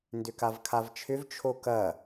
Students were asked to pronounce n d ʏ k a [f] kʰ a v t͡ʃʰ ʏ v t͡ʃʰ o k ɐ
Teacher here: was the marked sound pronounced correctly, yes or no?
no